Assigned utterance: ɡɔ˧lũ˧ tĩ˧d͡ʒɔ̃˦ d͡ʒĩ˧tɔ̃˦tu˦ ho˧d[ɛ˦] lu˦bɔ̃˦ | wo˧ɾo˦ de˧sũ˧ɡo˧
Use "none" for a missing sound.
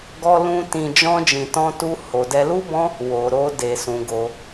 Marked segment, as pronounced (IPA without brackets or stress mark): ɛ˦